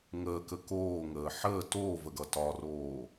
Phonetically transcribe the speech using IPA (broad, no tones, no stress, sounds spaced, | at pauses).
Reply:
ŋ əː k ə k oː ŋ əː ħ əː t oː v ə ɡ ʌ t ɒ r oː